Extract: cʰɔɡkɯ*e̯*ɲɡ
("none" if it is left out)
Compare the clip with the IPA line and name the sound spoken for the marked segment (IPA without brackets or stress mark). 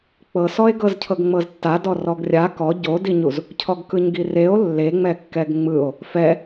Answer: none